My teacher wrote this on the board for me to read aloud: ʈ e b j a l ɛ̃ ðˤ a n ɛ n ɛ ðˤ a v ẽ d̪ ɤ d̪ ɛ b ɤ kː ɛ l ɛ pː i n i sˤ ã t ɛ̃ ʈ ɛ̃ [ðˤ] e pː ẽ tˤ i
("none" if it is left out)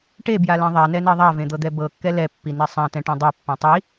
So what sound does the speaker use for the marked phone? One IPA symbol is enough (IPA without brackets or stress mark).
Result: dˤ